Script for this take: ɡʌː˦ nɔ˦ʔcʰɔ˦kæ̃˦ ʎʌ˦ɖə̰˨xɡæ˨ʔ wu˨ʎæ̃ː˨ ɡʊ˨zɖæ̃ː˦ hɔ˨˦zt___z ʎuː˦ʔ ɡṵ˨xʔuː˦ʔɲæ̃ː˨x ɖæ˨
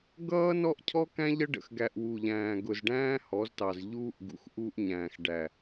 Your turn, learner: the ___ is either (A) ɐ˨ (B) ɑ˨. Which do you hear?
B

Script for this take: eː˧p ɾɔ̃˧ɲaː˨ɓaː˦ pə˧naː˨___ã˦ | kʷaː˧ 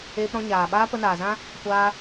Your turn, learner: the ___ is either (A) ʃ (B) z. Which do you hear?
B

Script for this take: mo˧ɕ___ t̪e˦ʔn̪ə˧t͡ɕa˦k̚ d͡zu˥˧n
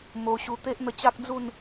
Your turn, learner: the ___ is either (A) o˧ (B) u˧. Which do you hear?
B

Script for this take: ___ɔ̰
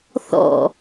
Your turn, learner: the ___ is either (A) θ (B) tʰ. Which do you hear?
A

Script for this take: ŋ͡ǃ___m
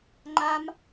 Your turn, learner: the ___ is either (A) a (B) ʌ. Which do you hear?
A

